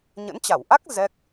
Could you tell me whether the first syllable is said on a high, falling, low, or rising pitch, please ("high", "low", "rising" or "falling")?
rising